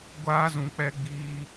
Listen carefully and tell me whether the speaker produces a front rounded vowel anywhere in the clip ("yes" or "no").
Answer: no